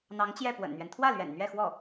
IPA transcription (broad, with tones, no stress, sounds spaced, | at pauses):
n̪ ɑ˧˥ ŋ t͡ɕ j ɛ˥˩ p w ə̰˨˩ n n̪ ɥ ɛ˦ n t̪ʰ w ä˥˩ l ɥ ɛ̰˨˩ n n̪ ɥ ɛ˥˧ x w ɔ˥˩